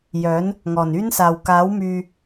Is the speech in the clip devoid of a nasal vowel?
yes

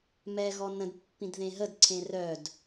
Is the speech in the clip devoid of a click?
no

